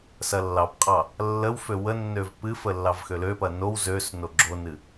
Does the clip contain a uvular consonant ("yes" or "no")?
yes